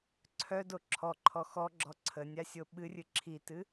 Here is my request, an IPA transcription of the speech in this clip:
ǀʰœdo ǁʰɔǃʰɔ xɔɡ͡ǁɔ ǀʰənʲasʲo ɓɨrʲɨ ǁʰitɨ

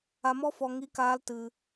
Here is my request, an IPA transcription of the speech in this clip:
a˧mɔ˦fɔ˧ ŋi˦kaː˦l tɨ˧

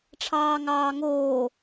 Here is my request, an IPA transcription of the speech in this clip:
ʈ͡ʂʰɑːŋɑːŋoː

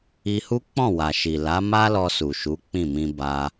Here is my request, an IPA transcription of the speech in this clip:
i˧hu˦ k͡pɔ̃˦˨wa˨ ʃi˨ la˨˦ ma˦ lɔ˧su˨ʃu˨˦ k͡pĩ˦˨mĩ˧ba˧

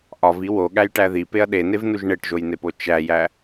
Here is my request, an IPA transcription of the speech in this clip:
ʔɒvi woɠæjʈæ ðipeɐ̯ ɗenevnuʒ ɳeʈʒojnepo t͡ʃæjæ

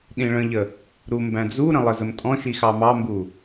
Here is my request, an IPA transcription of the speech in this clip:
ɗĩɭə̃ʎə | ɾumbæ̃d͡zuɾə̃ lˠəzəmtʼɔ̃ʃi xɑmɑmbu

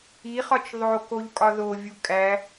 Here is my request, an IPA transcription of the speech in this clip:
iχɒt͡ʃ ðˤo koʎkʼɒðovʲu kʼæ

